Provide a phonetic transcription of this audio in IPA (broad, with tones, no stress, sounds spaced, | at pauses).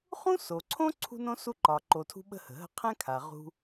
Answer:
χ ũ˥ s o˩ ǀʰ õ˥ ǀʰ ṳ˥ n õ˥ s u˥ ǃ ɒ˩ ǃ o˩ tʰ ṳ˥ ɓ ə̤˥ h ə̤˩ ɦ ə̤˥ qʰ ɛ̃˥ kʰ a˩ ʁ ṳ˥